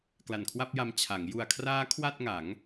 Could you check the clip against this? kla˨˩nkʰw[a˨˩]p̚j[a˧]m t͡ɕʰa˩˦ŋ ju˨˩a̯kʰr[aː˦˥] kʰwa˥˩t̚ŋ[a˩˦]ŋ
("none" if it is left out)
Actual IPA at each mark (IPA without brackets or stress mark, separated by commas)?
a˥˩, a˧, aː˦˥, a˩˦